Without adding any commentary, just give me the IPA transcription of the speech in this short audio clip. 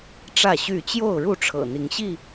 ʈ͡ʂä˥˨ɕy˥˨ t͡ɕjo˥˨ʊ̯ɻu˥˨ ʈ͡ʂʰɤ̰˨˩n̪i˨˦ŋɕi˥˨

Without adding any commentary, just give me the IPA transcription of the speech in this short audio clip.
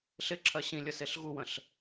ɬɪǁʰɜ ɕĩlʲəseɬ ɣuwə̃ɬ

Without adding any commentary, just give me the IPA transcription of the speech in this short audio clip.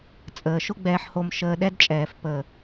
t͡sʼəː˨ʃʊ˦ɡ͡bɛː˧ħho˧m ʃəː˧ɗɛ˦dt͡ʃʼɛː˨f pəː˨

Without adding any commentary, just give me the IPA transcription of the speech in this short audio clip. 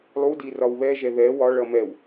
lˠudi rɒwβɛʒɛ ðɛ wɒɭʌ mɛw

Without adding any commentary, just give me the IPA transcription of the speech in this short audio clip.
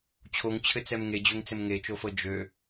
t͡ɕʰoŋt͡ɕʰɘt͡sɛm ŋed͡ʑøŋt͡sɘm ŋet͡ʃofɤ d͡ʒø

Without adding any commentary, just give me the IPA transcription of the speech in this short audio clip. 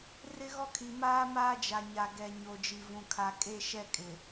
rɪ˦ɣɔ˦kʰi˨maː˦ maː˦d͡ʒa˨ɲa˨ɡɛ˨ ɲo˨d͡ʒi˨vũ˨ kʰa˨ kʼe˦ ʃɛ˦kʼɪ˨

